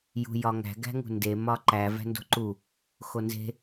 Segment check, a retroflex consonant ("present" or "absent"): absent